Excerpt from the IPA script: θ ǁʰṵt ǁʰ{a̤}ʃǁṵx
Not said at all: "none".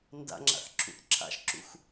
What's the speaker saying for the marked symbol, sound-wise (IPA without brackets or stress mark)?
a̰